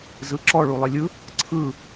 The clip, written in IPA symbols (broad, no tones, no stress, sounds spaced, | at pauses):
z ɯ ǁ ɔ ɭ u lˠ e lʲ ɯ | ǀʰ ɯ